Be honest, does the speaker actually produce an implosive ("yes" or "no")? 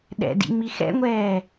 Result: yes